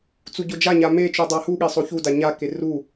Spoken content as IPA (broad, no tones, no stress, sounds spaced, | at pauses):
t͡s u ɟ o d͡ʒ a ɲ a m e t͡ʃ u dˤ a h u ɠ e sˤ o ç u d a ɲ a k e r u